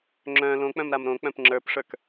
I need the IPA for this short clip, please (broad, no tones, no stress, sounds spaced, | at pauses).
ŋ͡ǁ œ̃ l õ k͡p œ̃ m ɾ a m ɾ õ k͡p œ̃ p ŋ͡ǁ ə˞ p ʂ ə˞ k